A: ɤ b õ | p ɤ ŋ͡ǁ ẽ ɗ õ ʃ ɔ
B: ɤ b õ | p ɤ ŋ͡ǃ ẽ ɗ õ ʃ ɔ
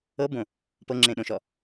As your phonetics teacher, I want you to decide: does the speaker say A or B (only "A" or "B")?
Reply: A